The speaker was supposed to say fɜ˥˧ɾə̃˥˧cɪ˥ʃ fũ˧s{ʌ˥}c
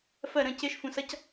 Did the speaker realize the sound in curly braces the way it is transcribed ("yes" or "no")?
yes